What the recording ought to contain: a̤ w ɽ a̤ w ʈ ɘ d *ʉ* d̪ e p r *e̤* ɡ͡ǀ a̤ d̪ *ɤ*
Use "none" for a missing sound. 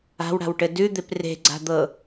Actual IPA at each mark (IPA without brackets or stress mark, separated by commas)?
ʉ, e̤, ɤ